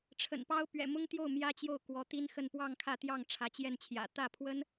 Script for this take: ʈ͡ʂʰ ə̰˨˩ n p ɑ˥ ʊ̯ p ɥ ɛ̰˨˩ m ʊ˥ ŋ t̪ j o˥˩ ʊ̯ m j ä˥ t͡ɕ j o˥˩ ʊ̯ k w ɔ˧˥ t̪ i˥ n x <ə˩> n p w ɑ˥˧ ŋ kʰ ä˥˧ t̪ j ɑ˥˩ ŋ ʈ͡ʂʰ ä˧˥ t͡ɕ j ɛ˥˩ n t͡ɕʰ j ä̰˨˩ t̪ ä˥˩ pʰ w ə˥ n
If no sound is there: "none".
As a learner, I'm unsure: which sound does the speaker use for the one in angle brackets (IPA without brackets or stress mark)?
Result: ə˥˧